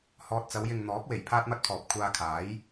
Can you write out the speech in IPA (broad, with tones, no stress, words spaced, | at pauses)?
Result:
hɔː˨t̚t͡sɐ˨˧wjɪ˨ŋ n̪ɔː˨˥k̚we˨˩j pʰaː˥t̚mɐ˥t̚pʰɔː˨p̚ kʷʰaː˧kʰaː˨˥j